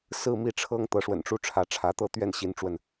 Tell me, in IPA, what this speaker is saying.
s ɹ̩˥˧ m i˥˩ ʈ͡ʂʰ ɤ˥ ŋ t̪ ɤ˧˥ ʂ w ə̰˨˩ n ʈ͡ʂ u˥ ʈ͡ʂʰ ä˧˥ ʈ͡ʂʰ ä˧˥ t̪ ɤ˥˧ t̪ ɥ ɛ˥˩ n ɕ i˧˥ n ʈ͡ʂ w ə˧ n

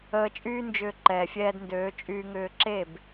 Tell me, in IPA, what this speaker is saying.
əː˧ t͡ʃʼ yː˦ n d͡ʒ ʏː˧ ǃ ɛː˨ fʲ ɛː˧ d n d øː˨˦ t͡ʃʼ yː˧ ŋ ʏː˧ ǁ e˦˨ b

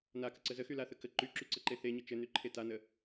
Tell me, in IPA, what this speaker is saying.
n a k ə ǀ ə z ə x y l a θ ə k ə ǃ y ǁ y ǀ ə ǃ e θ e ɲ ə t͡ʃ ɘ n y ǃʰ e t a n ə

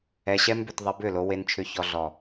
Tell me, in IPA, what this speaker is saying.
ɛ˨ ɕ ɛ˧ m b ʏ˨ t ðˤ e˧ b ʏ˦˨ l o˧ w e˧ n t͡ʃʰ ʏ˧ ç ɔ˧ ɮ ɔ˨

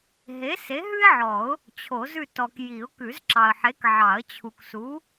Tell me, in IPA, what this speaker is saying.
ɦ e˨˥ s e˨˥ ɦ ʉ˥ ɪ̯ ʕ ɔ˨˩˦ ʊ̯ | t͡ɕʰ o˨˩˦ z ʉ˦˨ t ɔ˨ k j i˨˩˦ ʊ̯ k ʉ˨˩˦ z ǁ ɑ˨ ə̯ ħ e˨˥ k ʕ ɑ˨˩˦ ə̯ t͡ɕʰ u˨ k s u˨˥

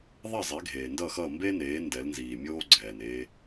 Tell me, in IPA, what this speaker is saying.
ðˤ ɛ˥˩ zˤ e˩˥ ɡʱ eː˩ n d ʌ˥˩ x ʌː˥˩ m b e˥ n eː˩˥ n d ɛ˩˥ l n z iː˩ mʲ oː˥ ɡ͡ǀ ɛː˩ n e˧

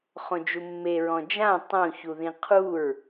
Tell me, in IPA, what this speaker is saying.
χ õ d͡ʒ u mː e ɹ ɔ̃ d͡ʒ ã tˤ õ ç u ð ĩ qʰ u ɹ

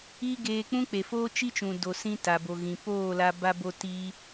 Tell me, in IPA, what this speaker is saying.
iː˦ ɡ eː˧ k͡p ũ˦ k͡p e˨ f oː˦ t͡ʃ i˦ t͡ʃ ũ˨ d o˨ s ĩ˧ t a˨ b o˨ ɣ ĩ˨ p oː˦˨ l a˧ b a˧ b o˧ t iː˧

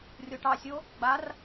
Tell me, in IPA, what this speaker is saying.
rʲ o ʈ ɑ sʲ o | ɡ͡b a r

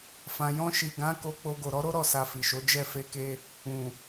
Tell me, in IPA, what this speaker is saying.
f ã˨ j ɔ̃˧ ʃ i˨ ɡ ã˨˦ k o˧ k͡p o˧ ɡ o˨ ɾ ɔ˨˦ ɾ o˦ ɾ ɔ˦˨ s a˧ f i˨ ʃ o˨˦ d͡ʒ ɛ˦˨ f e˧ k e˧ | ũ˨

